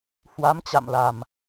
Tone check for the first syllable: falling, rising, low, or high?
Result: rising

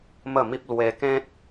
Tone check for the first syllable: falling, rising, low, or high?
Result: falling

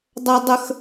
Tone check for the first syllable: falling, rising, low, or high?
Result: high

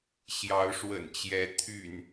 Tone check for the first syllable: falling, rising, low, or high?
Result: rising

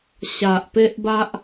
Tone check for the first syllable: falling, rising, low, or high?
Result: low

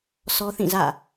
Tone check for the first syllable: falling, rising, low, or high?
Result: high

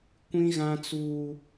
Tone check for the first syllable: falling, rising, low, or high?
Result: high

